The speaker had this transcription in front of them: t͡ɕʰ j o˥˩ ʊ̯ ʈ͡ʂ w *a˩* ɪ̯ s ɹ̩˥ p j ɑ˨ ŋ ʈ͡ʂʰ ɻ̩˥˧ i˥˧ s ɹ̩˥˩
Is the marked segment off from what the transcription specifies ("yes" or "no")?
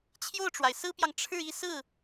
no